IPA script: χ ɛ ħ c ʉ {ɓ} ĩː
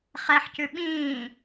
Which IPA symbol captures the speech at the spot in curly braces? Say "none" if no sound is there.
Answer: ɓ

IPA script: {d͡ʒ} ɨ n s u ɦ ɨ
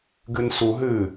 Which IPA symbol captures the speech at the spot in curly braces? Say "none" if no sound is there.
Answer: ɡ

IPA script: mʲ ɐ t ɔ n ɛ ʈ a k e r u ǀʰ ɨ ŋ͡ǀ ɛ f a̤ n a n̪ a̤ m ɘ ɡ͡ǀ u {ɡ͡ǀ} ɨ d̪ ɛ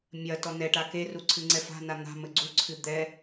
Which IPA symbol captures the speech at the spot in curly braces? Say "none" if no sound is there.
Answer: ǀʰ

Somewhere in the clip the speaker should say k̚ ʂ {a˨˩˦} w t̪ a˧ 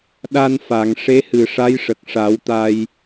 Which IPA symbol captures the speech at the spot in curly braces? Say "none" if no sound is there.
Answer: a˨˩˦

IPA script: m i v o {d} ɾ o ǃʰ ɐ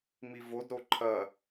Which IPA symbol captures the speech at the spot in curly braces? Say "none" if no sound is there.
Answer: d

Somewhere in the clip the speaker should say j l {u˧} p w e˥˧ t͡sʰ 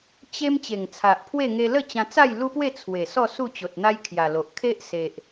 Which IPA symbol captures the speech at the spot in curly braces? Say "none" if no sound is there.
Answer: u˦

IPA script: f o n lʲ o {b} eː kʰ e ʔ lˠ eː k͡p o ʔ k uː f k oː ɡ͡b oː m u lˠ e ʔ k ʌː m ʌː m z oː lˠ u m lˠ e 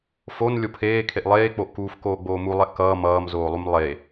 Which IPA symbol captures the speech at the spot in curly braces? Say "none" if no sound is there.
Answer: pʰ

